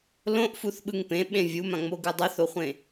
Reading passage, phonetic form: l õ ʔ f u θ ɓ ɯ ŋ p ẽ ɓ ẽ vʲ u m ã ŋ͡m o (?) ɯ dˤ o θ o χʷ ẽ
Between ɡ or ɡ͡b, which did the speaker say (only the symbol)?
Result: ɡ